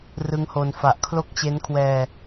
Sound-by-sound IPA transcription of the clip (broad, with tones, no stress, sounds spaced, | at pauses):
r ɯ˦˥ ŋ h o˧ n f a˨˩ ʔ kʰ l o˦˥ k̚ t͡ɕ e˦˥ n kʰ w ɛː˧